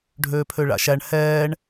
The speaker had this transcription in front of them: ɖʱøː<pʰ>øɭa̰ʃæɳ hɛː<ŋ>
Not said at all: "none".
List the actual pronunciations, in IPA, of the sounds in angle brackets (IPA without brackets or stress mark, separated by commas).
pʰ, ɳ